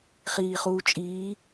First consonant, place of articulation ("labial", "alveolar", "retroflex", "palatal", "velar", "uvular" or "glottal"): uvular